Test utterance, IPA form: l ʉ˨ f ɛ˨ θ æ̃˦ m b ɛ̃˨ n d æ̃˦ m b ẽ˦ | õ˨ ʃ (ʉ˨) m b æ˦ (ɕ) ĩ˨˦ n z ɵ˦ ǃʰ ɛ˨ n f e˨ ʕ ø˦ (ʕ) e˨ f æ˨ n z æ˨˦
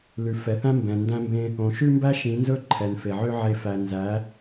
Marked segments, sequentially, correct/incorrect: incorrect: ʉ˦, incorrect: ʃ, correct

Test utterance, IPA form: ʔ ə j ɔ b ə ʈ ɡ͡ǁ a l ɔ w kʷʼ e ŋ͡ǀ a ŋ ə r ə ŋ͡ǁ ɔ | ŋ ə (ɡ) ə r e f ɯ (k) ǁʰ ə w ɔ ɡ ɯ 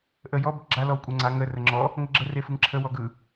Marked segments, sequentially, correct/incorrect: incorrect: ɡ͡ǁ, incorrect: ŋ

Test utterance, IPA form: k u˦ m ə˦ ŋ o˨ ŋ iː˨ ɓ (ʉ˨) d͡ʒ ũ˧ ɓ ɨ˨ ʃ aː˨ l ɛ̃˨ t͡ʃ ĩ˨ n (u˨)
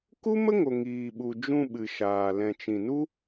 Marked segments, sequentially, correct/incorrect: incorrect: u˨, incorrect: u˦

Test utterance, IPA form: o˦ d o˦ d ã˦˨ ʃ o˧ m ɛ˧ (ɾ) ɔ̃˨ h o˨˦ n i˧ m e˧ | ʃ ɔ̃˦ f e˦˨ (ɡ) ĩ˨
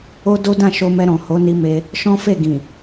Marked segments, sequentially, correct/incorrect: correct, correct

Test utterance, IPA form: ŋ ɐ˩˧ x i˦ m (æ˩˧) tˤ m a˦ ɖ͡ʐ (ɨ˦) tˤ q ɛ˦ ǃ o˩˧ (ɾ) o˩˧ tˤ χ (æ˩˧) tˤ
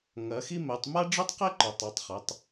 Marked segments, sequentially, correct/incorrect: incorrect: ɛ˩˧, correct, incorrect: tˤ, incorrect: ɐ˩˧

